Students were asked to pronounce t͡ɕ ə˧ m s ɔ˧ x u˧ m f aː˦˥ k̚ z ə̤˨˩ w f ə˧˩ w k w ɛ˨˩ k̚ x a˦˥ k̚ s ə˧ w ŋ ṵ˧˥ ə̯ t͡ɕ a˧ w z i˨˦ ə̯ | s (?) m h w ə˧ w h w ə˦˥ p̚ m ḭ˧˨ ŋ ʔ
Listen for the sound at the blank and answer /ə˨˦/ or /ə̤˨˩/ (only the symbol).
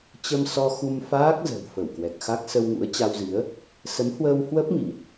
ə˨˦